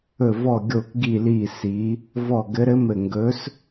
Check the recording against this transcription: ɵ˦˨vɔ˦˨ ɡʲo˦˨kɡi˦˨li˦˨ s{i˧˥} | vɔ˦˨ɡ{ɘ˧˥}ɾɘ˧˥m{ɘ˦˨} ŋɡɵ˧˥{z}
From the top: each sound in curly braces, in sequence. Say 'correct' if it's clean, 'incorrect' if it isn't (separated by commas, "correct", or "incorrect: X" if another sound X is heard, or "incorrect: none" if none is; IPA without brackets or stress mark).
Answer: correct, correct, correct, incorrect: s